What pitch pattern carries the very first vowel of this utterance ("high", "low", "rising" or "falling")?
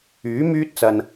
rising